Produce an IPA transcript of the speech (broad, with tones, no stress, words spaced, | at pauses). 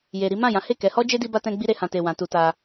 je˧ ɾi˦ mã˦˨jã˨˦he˦˨ kɛ˨˦hɔ˦d͡ʒe˦ di˦ba˦tɛ̃˦ ɡ͡bi˧ɾe˨hã˨te˨ wã˨˦tu˧ta˧